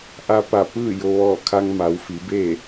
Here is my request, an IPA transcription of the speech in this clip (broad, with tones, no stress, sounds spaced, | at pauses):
ʔ a˧ p a˧˩ p ɯː˥˨ j o˧ ʋ ɔː˧˩ kʰ a˧ ŋ m a˩˧ w f i˩˧ b e˥˨